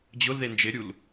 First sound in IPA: d͡ʑ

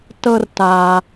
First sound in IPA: t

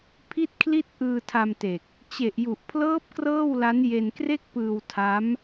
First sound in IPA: pʰ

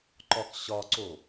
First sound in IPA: ǃ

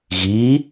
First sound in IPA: ɣ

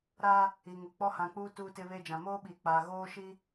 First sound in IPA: ɾ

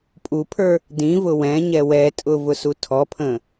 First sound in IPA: pʼ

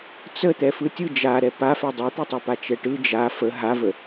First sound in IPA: t͡s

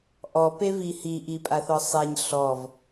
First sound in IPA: ʔ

